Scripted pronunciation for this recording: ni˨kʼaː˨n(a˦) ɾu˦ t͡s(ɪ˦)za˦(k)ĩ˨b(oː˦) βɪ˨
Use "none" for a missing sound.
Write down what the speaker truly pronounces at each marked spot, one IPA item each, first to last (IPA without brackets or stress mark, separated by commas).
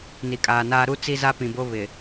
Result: aː˦, i˦, p, o˦